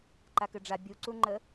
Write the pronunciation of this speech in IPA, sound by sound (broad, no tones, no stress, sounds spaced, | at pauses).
ǃ a k ɘ ɖ͡ʐ a bʲ u ǀ u ŋ͡ǃ ə